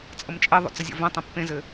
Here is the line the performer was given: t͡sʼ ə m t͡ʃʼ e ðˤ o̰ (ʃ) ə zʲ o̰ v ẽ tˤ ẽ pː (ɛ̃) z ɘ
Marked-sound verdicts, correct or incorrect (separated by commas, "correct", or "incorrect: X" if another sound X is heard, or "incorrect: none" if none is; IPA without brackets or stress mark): incorrect: t͡s, incorrect: ẽ